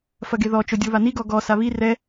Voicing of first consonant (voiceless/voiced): voiceless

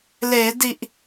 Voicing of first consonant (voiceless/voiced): voiced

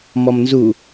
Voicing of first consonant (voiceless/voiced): voiced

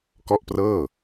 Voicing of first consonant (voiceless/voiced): voiceless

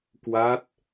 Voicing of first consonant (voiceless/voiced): voiceless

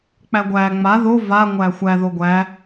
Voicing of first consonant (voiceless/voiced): voiceless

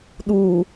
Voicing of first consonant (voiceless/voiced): voiced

